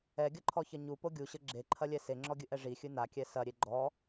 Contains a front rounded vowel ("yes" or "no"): no